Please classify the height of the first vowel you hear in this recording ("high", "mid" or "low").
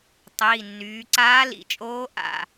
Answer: high